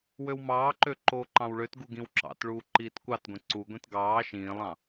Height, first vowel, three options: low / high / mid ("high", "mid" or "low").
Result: mid